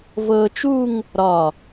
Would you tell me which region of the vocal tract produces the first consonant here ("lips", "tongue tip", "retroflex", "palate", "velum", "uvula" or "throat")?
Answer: lips